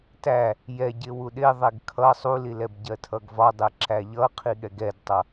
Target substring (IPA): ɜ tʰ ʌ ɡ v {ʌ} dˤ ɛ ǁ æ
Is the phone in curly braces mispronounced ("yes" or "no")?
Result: yes